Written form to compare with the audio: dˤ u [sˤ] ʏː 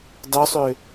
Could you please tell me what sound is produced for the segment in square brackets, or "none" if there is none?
sˤ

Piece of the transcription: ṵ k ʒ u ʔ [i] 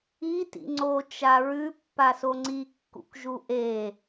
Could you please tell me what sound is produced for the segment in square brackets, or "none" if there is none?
e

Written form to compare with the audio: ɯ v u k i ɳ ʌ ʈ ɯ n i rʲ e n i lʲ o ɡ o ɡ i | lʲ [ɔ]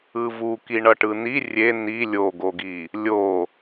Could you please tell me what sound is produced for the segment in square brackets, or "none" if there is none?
o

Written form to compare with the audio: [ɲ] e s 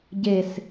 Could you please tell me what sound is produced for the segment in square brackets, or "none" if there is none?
ɟ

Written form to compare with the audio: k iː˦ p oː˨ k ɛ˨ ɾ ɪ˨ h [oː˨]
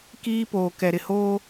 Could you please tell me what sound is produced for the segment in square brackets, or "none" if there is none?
oː˦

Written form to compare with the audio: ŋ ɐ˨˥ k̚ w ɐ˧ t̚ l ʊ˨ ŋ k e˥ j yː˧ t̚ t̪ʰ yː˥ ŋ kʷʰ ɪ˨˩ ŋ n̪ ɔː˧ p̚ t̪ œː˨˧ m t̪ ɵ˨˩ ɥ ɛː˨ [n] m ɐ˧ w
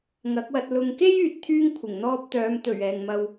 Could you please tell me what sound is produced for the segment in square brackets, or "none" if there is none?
ŋ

